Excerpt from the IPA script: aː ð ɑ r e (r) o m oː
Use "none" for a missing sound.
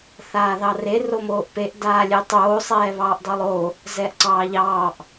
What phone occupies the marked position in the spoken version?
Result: r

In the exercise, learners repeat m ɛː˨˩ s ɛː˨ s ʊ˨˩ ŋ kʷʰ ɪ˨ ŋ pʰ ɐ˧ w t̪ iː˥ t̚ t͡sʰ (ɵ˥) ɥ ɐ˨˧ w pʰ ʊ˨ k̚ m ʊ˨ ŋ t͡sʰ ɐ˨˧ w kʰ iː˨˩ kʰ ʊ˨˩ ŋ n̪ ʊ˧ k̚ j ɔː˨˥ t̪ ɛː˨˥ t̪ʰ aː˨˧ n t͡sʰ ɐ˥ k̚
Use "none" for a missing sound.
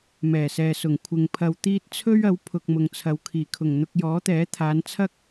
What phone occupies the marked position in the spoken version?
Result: ɵ˥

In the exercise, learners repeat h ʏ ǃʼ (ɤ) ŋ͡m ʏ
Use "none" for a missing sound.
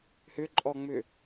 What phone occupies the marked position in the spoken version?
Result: ɔ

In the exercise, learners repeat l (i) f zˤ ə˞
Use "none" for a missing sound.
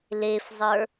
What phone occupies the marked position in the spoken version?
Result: e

